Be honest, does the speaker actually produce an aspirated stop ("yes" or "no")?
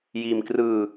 no